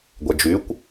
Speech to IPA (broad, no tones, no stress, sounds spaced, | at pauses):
ɡʷ ɛ d͡ʒ y kʷ